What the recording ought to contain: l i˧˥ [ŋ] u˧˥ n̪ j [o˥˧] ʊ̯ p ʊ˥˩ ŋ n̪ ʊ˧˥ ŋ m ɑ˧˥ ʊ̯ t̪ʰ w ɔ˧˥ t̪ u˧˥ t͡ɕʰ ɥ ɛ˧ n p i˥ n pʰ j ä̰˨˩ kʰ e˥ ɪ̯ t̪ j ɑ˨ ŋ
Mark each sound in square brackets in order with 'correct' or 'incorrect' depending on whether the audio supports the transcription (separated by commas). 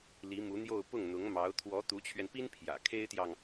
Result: incorrect, correct